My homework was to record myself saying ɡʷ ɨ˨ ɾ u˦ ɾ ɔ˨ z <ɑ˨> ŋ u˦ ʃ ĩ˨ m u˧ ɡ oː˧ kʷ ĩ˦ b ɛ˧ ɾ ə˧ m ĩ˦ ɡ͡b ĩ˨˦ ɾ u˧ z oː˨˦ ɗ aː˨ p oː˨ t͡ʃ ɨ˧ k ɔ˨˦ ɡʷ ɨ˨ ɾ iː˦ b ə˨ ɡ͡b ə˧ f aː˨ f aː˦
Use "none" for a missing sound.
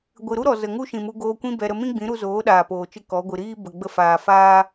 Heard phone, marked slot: ə˨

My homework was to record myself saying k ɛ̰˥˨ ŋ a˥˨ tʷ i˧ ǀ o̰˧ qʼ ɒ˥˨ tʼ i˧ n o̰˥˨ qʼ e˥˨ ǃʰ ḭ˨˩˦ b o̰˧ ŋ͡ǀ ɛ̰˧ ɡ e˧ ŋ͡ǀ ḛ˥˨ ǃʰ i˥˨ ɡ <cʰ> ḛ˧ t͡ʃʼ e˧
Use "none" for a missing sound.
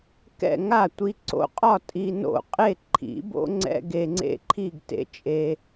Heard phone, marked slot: t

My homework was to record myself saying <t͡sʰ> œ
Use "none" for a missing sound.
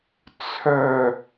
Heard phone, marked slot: t͡sʰ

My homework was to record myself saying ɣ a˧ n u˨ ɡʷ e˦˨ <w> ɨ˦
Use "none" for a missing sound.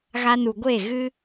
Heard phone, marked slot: ɣ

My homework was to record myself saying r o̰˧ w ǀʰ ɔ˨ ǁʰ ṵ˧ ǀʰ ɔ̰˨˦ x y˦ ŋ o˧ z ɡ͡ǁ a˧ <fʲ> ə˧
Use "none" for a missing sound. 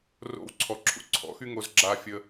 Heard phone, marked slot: fʲ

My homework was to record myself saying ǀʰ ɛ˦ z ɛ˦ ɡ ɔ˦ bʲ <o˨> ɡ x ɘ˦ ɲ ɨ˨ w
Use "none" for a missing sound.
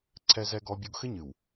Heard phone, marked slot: o˦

